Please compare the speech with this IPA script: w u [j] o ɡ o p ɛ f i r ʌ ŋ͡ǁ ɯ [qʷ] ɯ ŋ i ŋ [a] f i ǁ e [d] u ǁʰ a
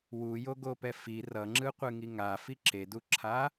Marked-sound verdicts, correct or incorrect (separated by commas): correct, correct, correct, correct